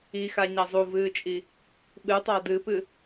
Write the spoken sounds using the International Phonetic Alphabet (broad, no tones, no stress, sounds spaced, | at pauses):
i x a ɲ a zˤ u v ɨː t͡ʃʼ i | ɓ ɨ tˤ a d ɨ p ɨ